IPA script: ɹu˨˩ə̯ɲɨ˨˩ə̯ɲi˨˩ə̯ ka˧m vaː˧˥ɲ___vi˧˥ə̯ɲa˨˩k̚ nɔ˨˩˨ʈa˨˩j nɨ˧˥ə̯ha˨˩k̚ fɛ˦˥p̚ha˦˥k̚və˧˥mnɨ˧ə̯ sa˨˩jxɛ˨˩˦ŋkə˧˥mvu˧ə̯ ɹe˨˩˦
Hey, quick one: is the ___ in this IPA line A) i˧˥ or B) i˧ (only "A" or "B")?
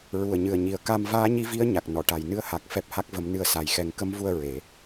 A